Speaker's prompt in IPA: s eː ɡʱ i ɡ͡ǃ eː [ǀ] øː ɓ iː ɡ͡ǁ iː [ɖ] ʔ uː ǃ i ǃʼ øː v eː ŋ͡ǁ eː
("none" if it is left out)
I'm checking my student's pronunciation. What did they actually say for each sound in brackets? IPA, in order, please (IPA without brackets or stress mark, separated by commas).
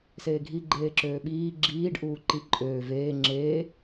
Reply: ǁ, ɖ